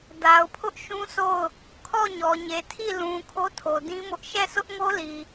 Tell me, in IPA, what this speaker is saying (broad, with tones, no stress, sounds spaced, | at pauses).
d a˨ ʊ̯ pʰ ʊ˦ ʔ ʃ ũ˦ sʰ o˦˨ ʊ̯ | kʰ ɔ˦˨ ɲ ɔ˨ ɲ e˨ tʰ i˦˨ l ũ˨ kʰ o˦ tʰ o˨ d ĩ˦ m ʊ˦ ʔ ʃ ɛ˦˨ sʰ ʊ˦ ʔ ŋ o˦ l i˨